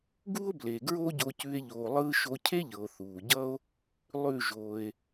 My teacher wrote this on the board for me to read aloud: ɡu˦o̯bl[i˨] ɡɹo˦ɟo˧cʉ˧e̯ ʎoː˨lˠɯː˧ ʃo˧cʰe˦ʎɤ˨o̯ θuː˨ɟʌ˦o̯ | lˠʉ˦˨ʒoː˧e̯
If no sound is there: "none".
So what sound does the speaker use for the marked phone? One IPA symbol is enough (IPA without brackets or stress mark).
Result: e˨